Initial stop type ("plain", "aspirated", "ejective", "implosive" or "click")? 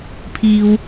aspirated